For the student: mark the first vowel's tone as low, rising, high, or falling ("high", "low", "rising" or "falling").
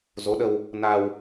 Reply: rising